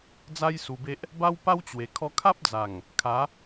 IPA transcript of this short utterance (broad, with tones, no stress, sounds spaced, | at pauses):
d͡z a˦ j s u˧ b e˦ ʔ | b a˦ w p a˦ w t͡ɕ w e˨˩ kʰ ɔ˧ kʰ a˦ p̚ d͡z a˨˩ ŋ | kʰ a˨˦